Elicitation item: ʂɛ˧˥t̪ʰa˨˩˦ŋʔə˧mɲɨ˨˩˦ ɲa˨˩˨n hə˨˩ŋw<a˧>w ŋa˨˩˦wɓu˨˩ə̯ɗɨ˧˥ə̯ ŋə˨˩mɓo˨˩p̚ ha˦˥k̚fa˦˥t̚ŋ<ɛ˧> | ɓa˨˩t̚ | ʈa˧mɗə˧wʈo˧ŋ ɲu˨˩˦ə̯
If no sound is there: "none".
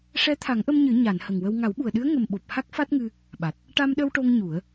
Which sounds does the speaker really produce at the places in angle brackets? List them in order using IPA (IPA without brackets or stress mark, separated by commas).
ə˧, ɨ˧